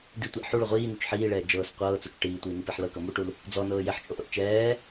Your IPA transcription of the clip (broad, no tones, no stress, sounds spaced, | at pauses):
d i tʷ ɛ ʔ ħ u ɭ o ʁʷ iː n u t͡ʃ ħ iː ɭ ɛː d͡ʒ ɤː s qʷ ɤː t͡s o t͡ʃ ʈ iː tʷ iː n i p i ħ l ɤ k ɤ m u ʈ u l | d͡z ɔ n ɤː j e ħ t͡ʃʼ o ʔ ɤ ʔ t͡ʃ ɛː